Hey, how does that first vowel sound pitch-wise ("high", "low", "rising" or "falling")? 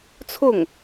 falling